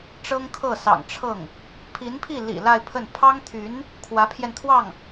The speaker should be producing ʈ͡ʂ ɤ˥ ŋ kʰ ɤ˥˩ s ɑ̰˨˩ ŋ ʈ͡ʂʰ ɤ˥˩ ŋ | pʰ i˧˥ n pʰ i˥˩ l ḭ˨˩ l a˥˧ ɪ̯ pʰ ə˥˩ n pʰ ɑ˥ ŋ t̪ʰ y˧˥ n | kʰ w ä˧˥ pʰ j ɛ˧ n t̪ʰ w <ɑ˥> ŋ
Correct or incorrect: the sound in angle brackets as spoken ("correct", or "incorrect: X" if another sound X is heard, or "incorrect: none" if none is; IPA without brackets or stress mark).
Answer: incorrect: ɑ˥˩